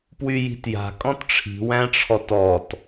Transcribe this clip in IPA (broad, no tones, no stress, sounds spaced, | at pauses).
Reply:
p w y j i̤ t j a̤ kʼ ɔ̃ t ʈ͡ʂʰ i̤ w æ̃ ʈ͡ʂʰ ɔ t ɔ t